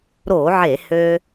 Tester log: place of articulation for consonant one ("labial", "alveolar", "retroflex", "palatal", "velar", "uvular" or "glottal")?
alveolar